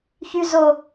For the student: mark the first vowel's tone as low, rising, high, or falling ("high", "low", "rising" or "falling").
high